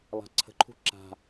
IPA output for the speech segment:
lˠ a̤ ǀʰ ə̤ ǃʰ ṳ ǁ a̤

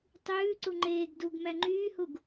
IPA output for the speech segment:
tˤ ʉː ǀ u ŋ͡ǃ eː ɡ d u ɡ m æ ŋ͡ǃ yː h u ɡ

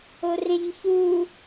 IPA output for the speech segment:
o r ẽ ɲ ç u

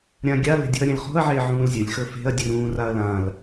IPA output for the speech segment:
ɾʲ ã ɡʲ a l e̤ dʲ ṳ ɐ̯ ɾʲ ẽ l χ o̤ ɐ̯ ʕ e ʕ ũː l zʲ ɵ lʲ x ɵ f e̤ ɐ̯ dʲ ʉ ɾ ũː r a ɐ̯ l ã l

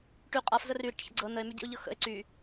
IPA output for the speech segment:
ʈ y qʼ a f z ə r y ɾ ḭ ʈ ç ə̰ ɡ͡ǀ ɤ n ə e̯ m y ɟ ḭ o̯ ʎ ɤ x ə̰ e̯ ǀ y

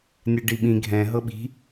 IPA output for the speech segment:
nʲ ɛ ɖ i ɓ ĩ ɡʱ ɛ̃ ɦ ɤ ɓ i̤

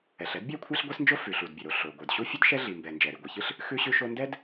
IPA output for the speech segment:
ɛ˩ ɬ ɛ˥ d bʲ æ˥ kʷʰ æ˥ ɬ ɡʷ ɛ˥ s n d͡ʒ o˥ f ʉ˩ ɬ u˩ d bʲ ə˩ ɾ o˩ ɬ o˩ ɡʷ ə˞˩ d ɕ u˥ fʲ ɨ˥ d ʃ ɛ˥ ɮ i˩ m b ɛ˩ n d͡ʒ ɛ˩ ɾ i˩ ɡʷ ɨ˩ ç ɨ˥ ɬ | x ʉ˥ ɕ ʉ˥ ʃ o˥ n d ɛ˥ d

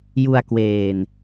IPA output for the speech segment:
j u˧ a̯ k w eː˨˩ n

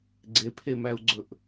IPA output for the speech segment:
ɡ͡ǀ e pʰ e m æ u̯ ɡ͡ǀ ɵ ʔ

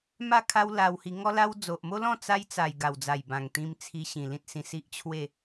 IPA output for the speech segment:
m a˥˧ kʰ a˦ w l a˧ w h i˧ ŋ ɔ˦ l a˦ w d͡z o˨ ʔ m o˦ l ɔ̃˥˧ t͡s a˦ j t͡s a˨˩ j ɡ a˨˩ w d͡z a˨˩ j b ã˨˩ ŋ t̪ ĩ˧ m t͡sʰ i˧ ɕ ĩ˨˩ l ĩ˦ t̚ s ĩ˧ s i˦ ʔ t͡ɕʰ w e˥˧

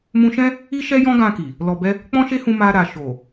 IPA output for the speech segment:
m ũ˧ ʃ ɛ̃˦ | i˦ ʃ ɛ˦ j ɔ̃˦ ɡ ã˧ k i˨ | l ɔ˨ b ɛ˧ | k͡p ɔ̃˦ ʃ e˦ h ũ˧ m a˧ ɾ a˨ ʃ o˨

